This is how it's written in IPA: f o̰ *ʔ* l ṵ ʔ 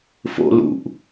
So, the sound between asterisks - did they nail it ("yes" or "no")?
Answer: no